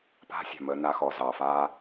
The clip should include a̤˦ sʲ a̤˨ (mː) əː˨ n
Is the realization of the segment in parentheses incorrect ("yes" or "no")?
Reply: yes